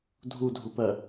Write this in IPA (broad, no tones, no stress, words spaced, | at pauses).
dʱudʱupɜ